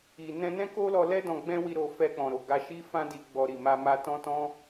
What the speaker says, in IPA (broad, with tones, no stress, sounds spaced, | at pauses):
i˨ n ɛ̃˧ n ɛ̃˦ k o˦ l ɔ˧ l ɛ˦ d ɔ̃˧ ɡ͡b ɛ̃˦ w i˧ ɾ o˨ f ɛ˧ k͡p ɔ̃˨ ɾ o˨ ɡ a˧ ʃ i˦ f ã˦ d i˧ ɡ͡b ɔ˧ ɾ i˨ m a˧ m a˧ t ɔ̃˦ t ɔ̃˦